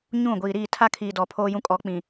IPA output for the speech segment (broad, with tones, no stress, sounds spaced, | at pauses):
ɲ ũ˦˨ ɡʷ iː˨ ɾ iː˦˨ tʰ a˦ kʰ iː˨ d ɔ˨ pʰ oː˦ j ũ˦ kʼ ɔ˨˦ k͡p ĩ˨